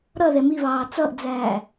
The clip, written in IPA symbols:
ɾ ʌ ð ɛ m i β ɑː t͡s ʌ ʔ d͡z æː

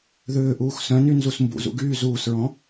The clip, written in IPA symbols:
ð ʏː ʔ uː x s œ̃ n y n z u s m b ṵ z ṵ ɡ yː z uː s ɹ ɔ̃

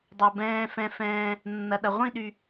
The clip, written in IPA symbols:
dˤ o˨ b ɛ̃ː˨ f ɛ̃˨ f ɛ̃ː˨ | nː ɐ˨ ɗ ɐ˨ ʁʷ ĩ˦˨ ɗ y˨

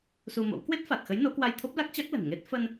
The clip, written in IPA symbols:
s u˧ m o̰˧˥ w k w e˦˥ t̚ f a˨˩ t̚ x ə˨˦ j n o˨˦ k w a˧ j t̪ʰ o˦˥ p̚ l a˦˥ k̚ t͡ɕ a˦˥ k̚ l ə̤˨˩ n ŋ e˦˥ t̚ f ə˧ n

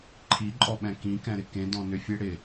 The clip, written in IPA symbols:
ǃʰ i ǃʼ ɔ ɓ ɛ̃ k ĩ k ɛ̃ ɾ ɪ k ẽ d ɔ̃ n ʏ fʲ e ɽ ɪ

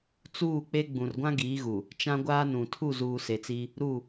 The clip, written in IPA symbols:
t͡s uː˦˨ k͡p e˦ ɡ͡b ũ˨ r ɡʷ ã˦ ɡ iː˨˦ ɣ u˨ | t͡ʃ ã˦ ɡʷ aː˦ n ũ˨ tʰ u˦˨ z uː˨ s e˨ t͡s i˦ | ɾ u˦˨

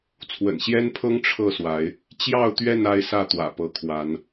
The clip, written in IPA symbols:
t͡sʰ w ə̰˨˩ n ɕ j ɛ˦ n pʰ ɤ˦ ŋ ʈ͡ʂʰ ɤ˥˨ s w a˨˦ ɪ̯ | t͡ɕ j ɑ˥˨ ʊ̯ t̪ ɥ ɛ˥˨ n a˦ ɪ̯ s ä˥˨ t̪ w ä̰˨˩ p ɤ˨˦ kʰ w a˨˦ n

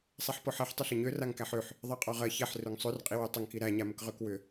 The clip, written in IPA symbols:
sˤ ɛ ħ p ɔ ħ ɛ ħ tˤ ʏ ɬ ə ɲ ø r a ŋ k æ ħ ø ħ | ðˤ ɜ qʼ ɔ ʁ ɜ ç ɛ ħ r ø ŋ sˤ ø r qʼ i w ø tˤ ə ŋ k i ɾ æ ɲ a m ə k ʁ ø k w ʏ

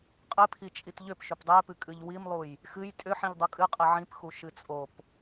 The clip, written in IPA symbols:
qʼ ɨ pʰ i t͡ʃʼ i t ʎ ʏ p ʃ ʏ p dˤ e p ɨ kʼ ɨ ʎ w i m lˠ u j | x ɨ j tʼ ʏ ħ ĩ ʎ dˤ u kʼ ɨ qʼ ɨ ʕ ĩ p x u ʃ ɨ t͡sʼ o p

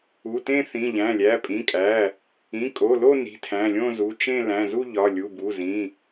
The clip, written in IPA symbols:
u˩˧˩ t ẽ˥˧ θ ĩ˩˧˩ ʎ æ̃˩˧˩ lʲ æ˩˧˩ pʼ ĩ˩˧˩ kʼ æ˩˧˩ | ĩ˩˧˩ kʼ o˩˧˩ l o˥˧ n i̤˩˧˩ tʰ æ̃˩˧˩ lʲ õ˥˧ z u˩˧˩ t͡ʃ ẽ˥˧ l æ̃˩˧˩ z u˥˧ ʎ ɒ˩˧˩ lʲ u˩˧˩ b u˩˧˩ z ĩ˩˧˩

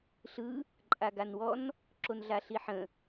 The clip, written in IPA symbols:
ɬ ɯ | ǃʼ a ɡ a n w ɔ n | ǁ o n ɮ a ɬ i ħ ə̃

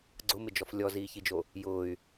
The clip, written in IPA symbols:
ɡ͡ǀ ʊ m ɪ d͡ʒ ɔ f lʲ ɔ z iː ç i d͡ʒ o | j ʊː y̯

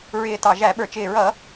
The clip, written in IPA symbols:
ɹ ɪː˨˩ t ɑ˨˩ ʒ æ˧˩˧ ɓ ə˞˨˩ t͡ʃ ɪː˨˩ ɹ ʌ˧˩˧

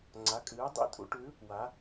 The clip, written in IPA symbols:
ŋ͡ǀ a˩˥ kʼ ɨː˩˥ dˤ ḭ˧˥˧ tʼ ṵ˩˥ ʈ ʉ˩˥ | w a˩˥

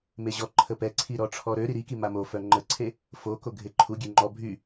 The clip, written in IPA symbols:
m e ʑ ɔ ǃʰ ə p ɛ ǀʰ i ɾ ɔ ʈ͡ʂʰ ɔ ɾ ø ɾ i ɾ i k i m a m o f œ ŋ͡ǃ ə ǀʰ e | f o k o ɡʱ e ǃʰ u ɡʲ ø ŋ͡ǃ ɔ bʱ y

